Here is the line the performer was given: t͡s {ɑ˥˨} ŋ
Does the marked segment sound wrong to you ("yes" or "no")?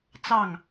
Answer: no